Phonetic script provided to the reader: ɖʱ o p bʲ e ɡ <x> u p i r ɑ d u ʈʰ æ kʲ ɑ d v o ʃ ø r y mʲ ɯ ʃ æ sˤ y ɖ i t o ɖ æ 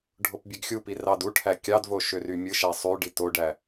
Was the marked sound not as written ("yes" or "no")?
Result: yes